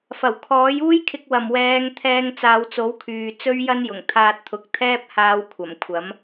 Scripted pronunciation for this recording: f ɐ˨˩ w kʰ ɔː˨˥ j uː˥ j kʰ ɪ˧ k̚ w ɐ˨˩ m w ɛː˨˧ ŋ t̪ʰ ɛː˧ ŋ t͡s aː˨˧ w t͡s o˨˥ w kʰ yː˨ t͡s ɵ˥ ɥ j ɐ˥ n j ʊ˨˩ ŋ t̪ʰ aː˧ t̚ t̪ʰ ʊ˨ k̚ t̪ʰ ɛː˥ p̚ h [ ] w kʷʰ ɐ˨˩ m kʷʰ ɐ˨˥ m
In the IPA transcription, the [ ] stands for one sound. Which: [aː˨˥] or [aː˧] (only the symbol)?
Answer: aː˧